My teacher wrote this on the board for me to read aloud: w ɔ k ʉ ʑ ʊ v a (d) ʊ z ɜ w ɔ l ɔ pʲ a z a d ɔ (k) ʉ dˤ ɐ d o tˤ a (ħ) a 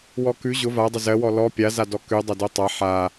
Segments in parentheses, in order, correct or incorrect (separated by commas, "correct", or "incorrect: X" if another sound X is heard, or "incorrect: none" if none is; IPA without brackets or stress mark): incorrect: dˤ, correct, correct